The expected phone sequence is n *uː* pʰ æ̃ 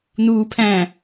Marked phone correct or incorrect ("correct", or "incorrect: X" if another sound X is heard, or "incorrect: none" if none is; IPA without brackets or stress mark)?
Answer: correct